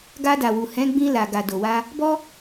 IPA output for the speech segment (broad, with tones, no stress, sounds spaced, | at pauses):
ɡ a˧ d a˨ w u˨ h ɛ̃˨˦ ɡ͡b ĩ˧ l a˨ ɡ a˨ d o˨ w a˧ | b ɔ˦